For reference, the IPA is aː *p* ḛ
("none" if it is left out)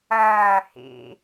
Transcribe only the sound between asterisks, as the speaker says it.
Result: h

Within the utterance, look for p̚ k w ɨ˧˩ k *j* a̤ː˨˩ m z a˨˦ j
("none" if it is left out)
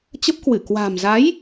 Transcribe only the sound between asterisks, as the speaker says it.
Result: w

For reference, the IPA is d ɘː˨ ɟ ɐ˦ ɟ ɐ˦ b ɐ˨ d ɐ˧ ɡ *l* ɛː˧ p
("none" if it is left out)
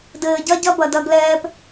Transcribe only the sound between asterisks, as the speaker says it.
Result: l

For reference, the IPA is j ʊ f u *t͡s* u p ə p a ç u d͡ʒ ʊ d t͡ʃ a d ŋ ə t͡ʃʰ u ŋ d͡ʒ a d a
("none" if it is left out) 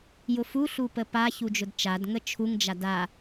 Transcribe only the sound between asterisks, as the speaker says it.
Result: ɬ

